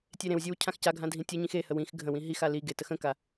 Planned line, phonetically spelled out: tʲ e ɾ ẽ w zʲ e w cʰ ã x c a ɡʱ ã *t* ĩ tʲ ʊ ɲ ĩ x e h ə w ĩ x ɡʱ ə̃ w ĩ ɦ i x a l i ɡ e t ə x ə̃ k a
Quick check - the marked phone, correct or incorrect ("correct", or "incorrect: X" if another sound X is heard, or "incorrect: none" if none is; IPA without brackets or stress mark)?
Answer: incorrect: dʱ